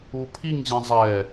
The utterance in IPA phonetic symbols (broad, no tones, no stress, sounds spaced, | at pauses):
u pʰ i ŋ ʑ ĩ zˤ ɛ